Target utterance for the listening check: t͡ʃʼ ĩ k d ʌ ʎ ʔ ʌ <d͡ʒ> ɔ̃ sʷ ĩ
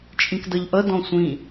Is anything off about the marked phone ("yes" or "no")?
yes